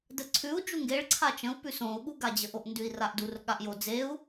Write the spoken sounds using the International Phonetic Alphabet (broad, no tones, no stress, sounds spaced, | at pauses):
d ə ǀʰ ʉ u̯ d͡ʒ u ŋ ɡ e ɭ ǀʰ a t͡ʃ ə̃ u̯ p ʉ s õ u̯ ɠ u ɡ a d͡ʑ ə ʔ o ʔ n d ʉ i̯ r a ʔ d u r ɠ a ʔ j o d͡z e u̯